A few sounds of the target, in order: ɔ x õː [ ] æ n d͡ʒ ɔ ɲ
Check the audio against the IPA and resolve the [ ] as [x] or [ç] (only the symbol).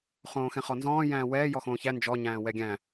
ç